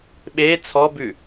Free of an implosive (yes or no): no